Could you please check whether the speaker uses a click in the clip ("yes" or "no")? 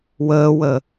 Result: no